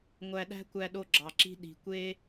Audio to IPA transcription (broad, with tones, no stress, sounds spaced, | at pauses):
ŋʷ æ˧ ɗ æ̤˥ kʷ æ˧ ɗ o˧ ɡ͡ǁ ɑ˩ ǁ i̤˧ ɗ i̤˩ kʷ e˧